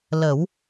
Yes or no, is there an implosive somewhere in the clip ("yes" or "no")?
no